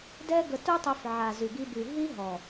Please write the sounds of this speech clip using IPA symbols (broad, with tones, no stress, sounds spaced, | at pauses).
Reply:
d ɛ˦ ɡ ə˧ t u˦ tˤ u˧ f ʕ a˨ z y˨ ɡ i˧ b y˨ ɦ i˦ ɦ ɔ˨